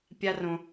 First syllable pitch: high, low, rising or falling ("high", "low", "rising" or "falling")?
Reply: high